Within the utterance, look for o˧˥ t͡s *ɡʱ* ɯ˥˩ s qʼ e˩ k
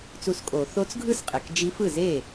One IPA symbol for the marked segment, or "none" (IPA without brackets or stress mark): ɡʱ